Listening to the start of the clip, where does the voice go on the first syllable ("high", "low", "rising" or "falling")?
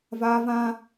high